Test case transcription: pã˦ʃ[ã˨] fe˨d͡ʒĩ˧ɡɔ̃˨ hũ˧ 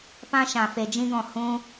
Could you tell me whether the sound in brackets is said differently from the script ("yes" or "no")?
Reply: no